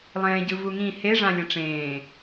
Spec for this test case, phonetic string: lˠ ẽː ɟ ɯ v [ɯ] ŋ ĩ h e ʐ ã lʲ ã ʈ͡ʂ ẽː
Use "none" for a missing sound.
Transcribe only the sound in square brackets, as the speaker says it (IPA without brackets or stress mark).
u